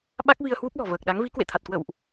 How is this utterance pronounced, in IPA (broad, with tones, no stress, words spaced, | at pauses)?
ɓa˦˥k̚vi˧ə̯hwu˦˥p̚lɔ̤˨˩ vəː˨˩k̚ɗa˨˦ŋ vi˨˦ kwḛ˧˨t̪ʰa˨˩t̚kwə̰˧˨wʔ